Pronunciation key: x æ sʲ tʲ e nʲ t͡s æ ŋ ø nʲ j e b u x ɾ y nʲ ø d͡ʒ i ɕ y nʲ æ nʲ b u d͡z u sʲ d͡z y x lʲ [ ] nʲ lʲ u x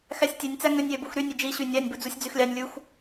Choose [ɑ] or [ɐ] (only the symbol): ɑ